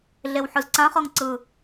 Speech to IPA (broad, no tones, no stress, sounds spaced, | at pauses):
ɮ e w ħ ɯ z ǀ ã χ ɤ ŋ ǀ ɯ